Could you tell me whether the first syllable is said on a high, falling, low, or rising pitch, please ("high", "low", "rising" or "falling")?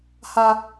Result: high